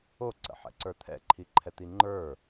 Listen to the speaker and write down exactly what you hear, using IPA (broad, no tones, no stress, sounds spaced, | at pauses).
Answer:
o ǀ ə̰ ħ ɛ̰ ǀ ə˞ t̪ʰ ɛ̰ ǃʰ i ǃʰ ɛ t̪ i ŋ͡ǃ ə˞